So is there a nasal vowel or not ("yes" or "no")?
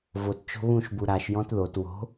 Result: yes